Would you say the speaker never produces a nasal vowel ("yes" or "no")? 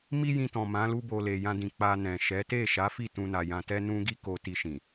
no